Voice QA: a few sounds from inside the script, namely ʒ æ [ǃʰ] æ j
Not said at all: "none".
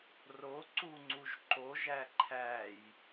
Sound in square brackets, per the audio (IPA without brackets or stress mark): ǃʰ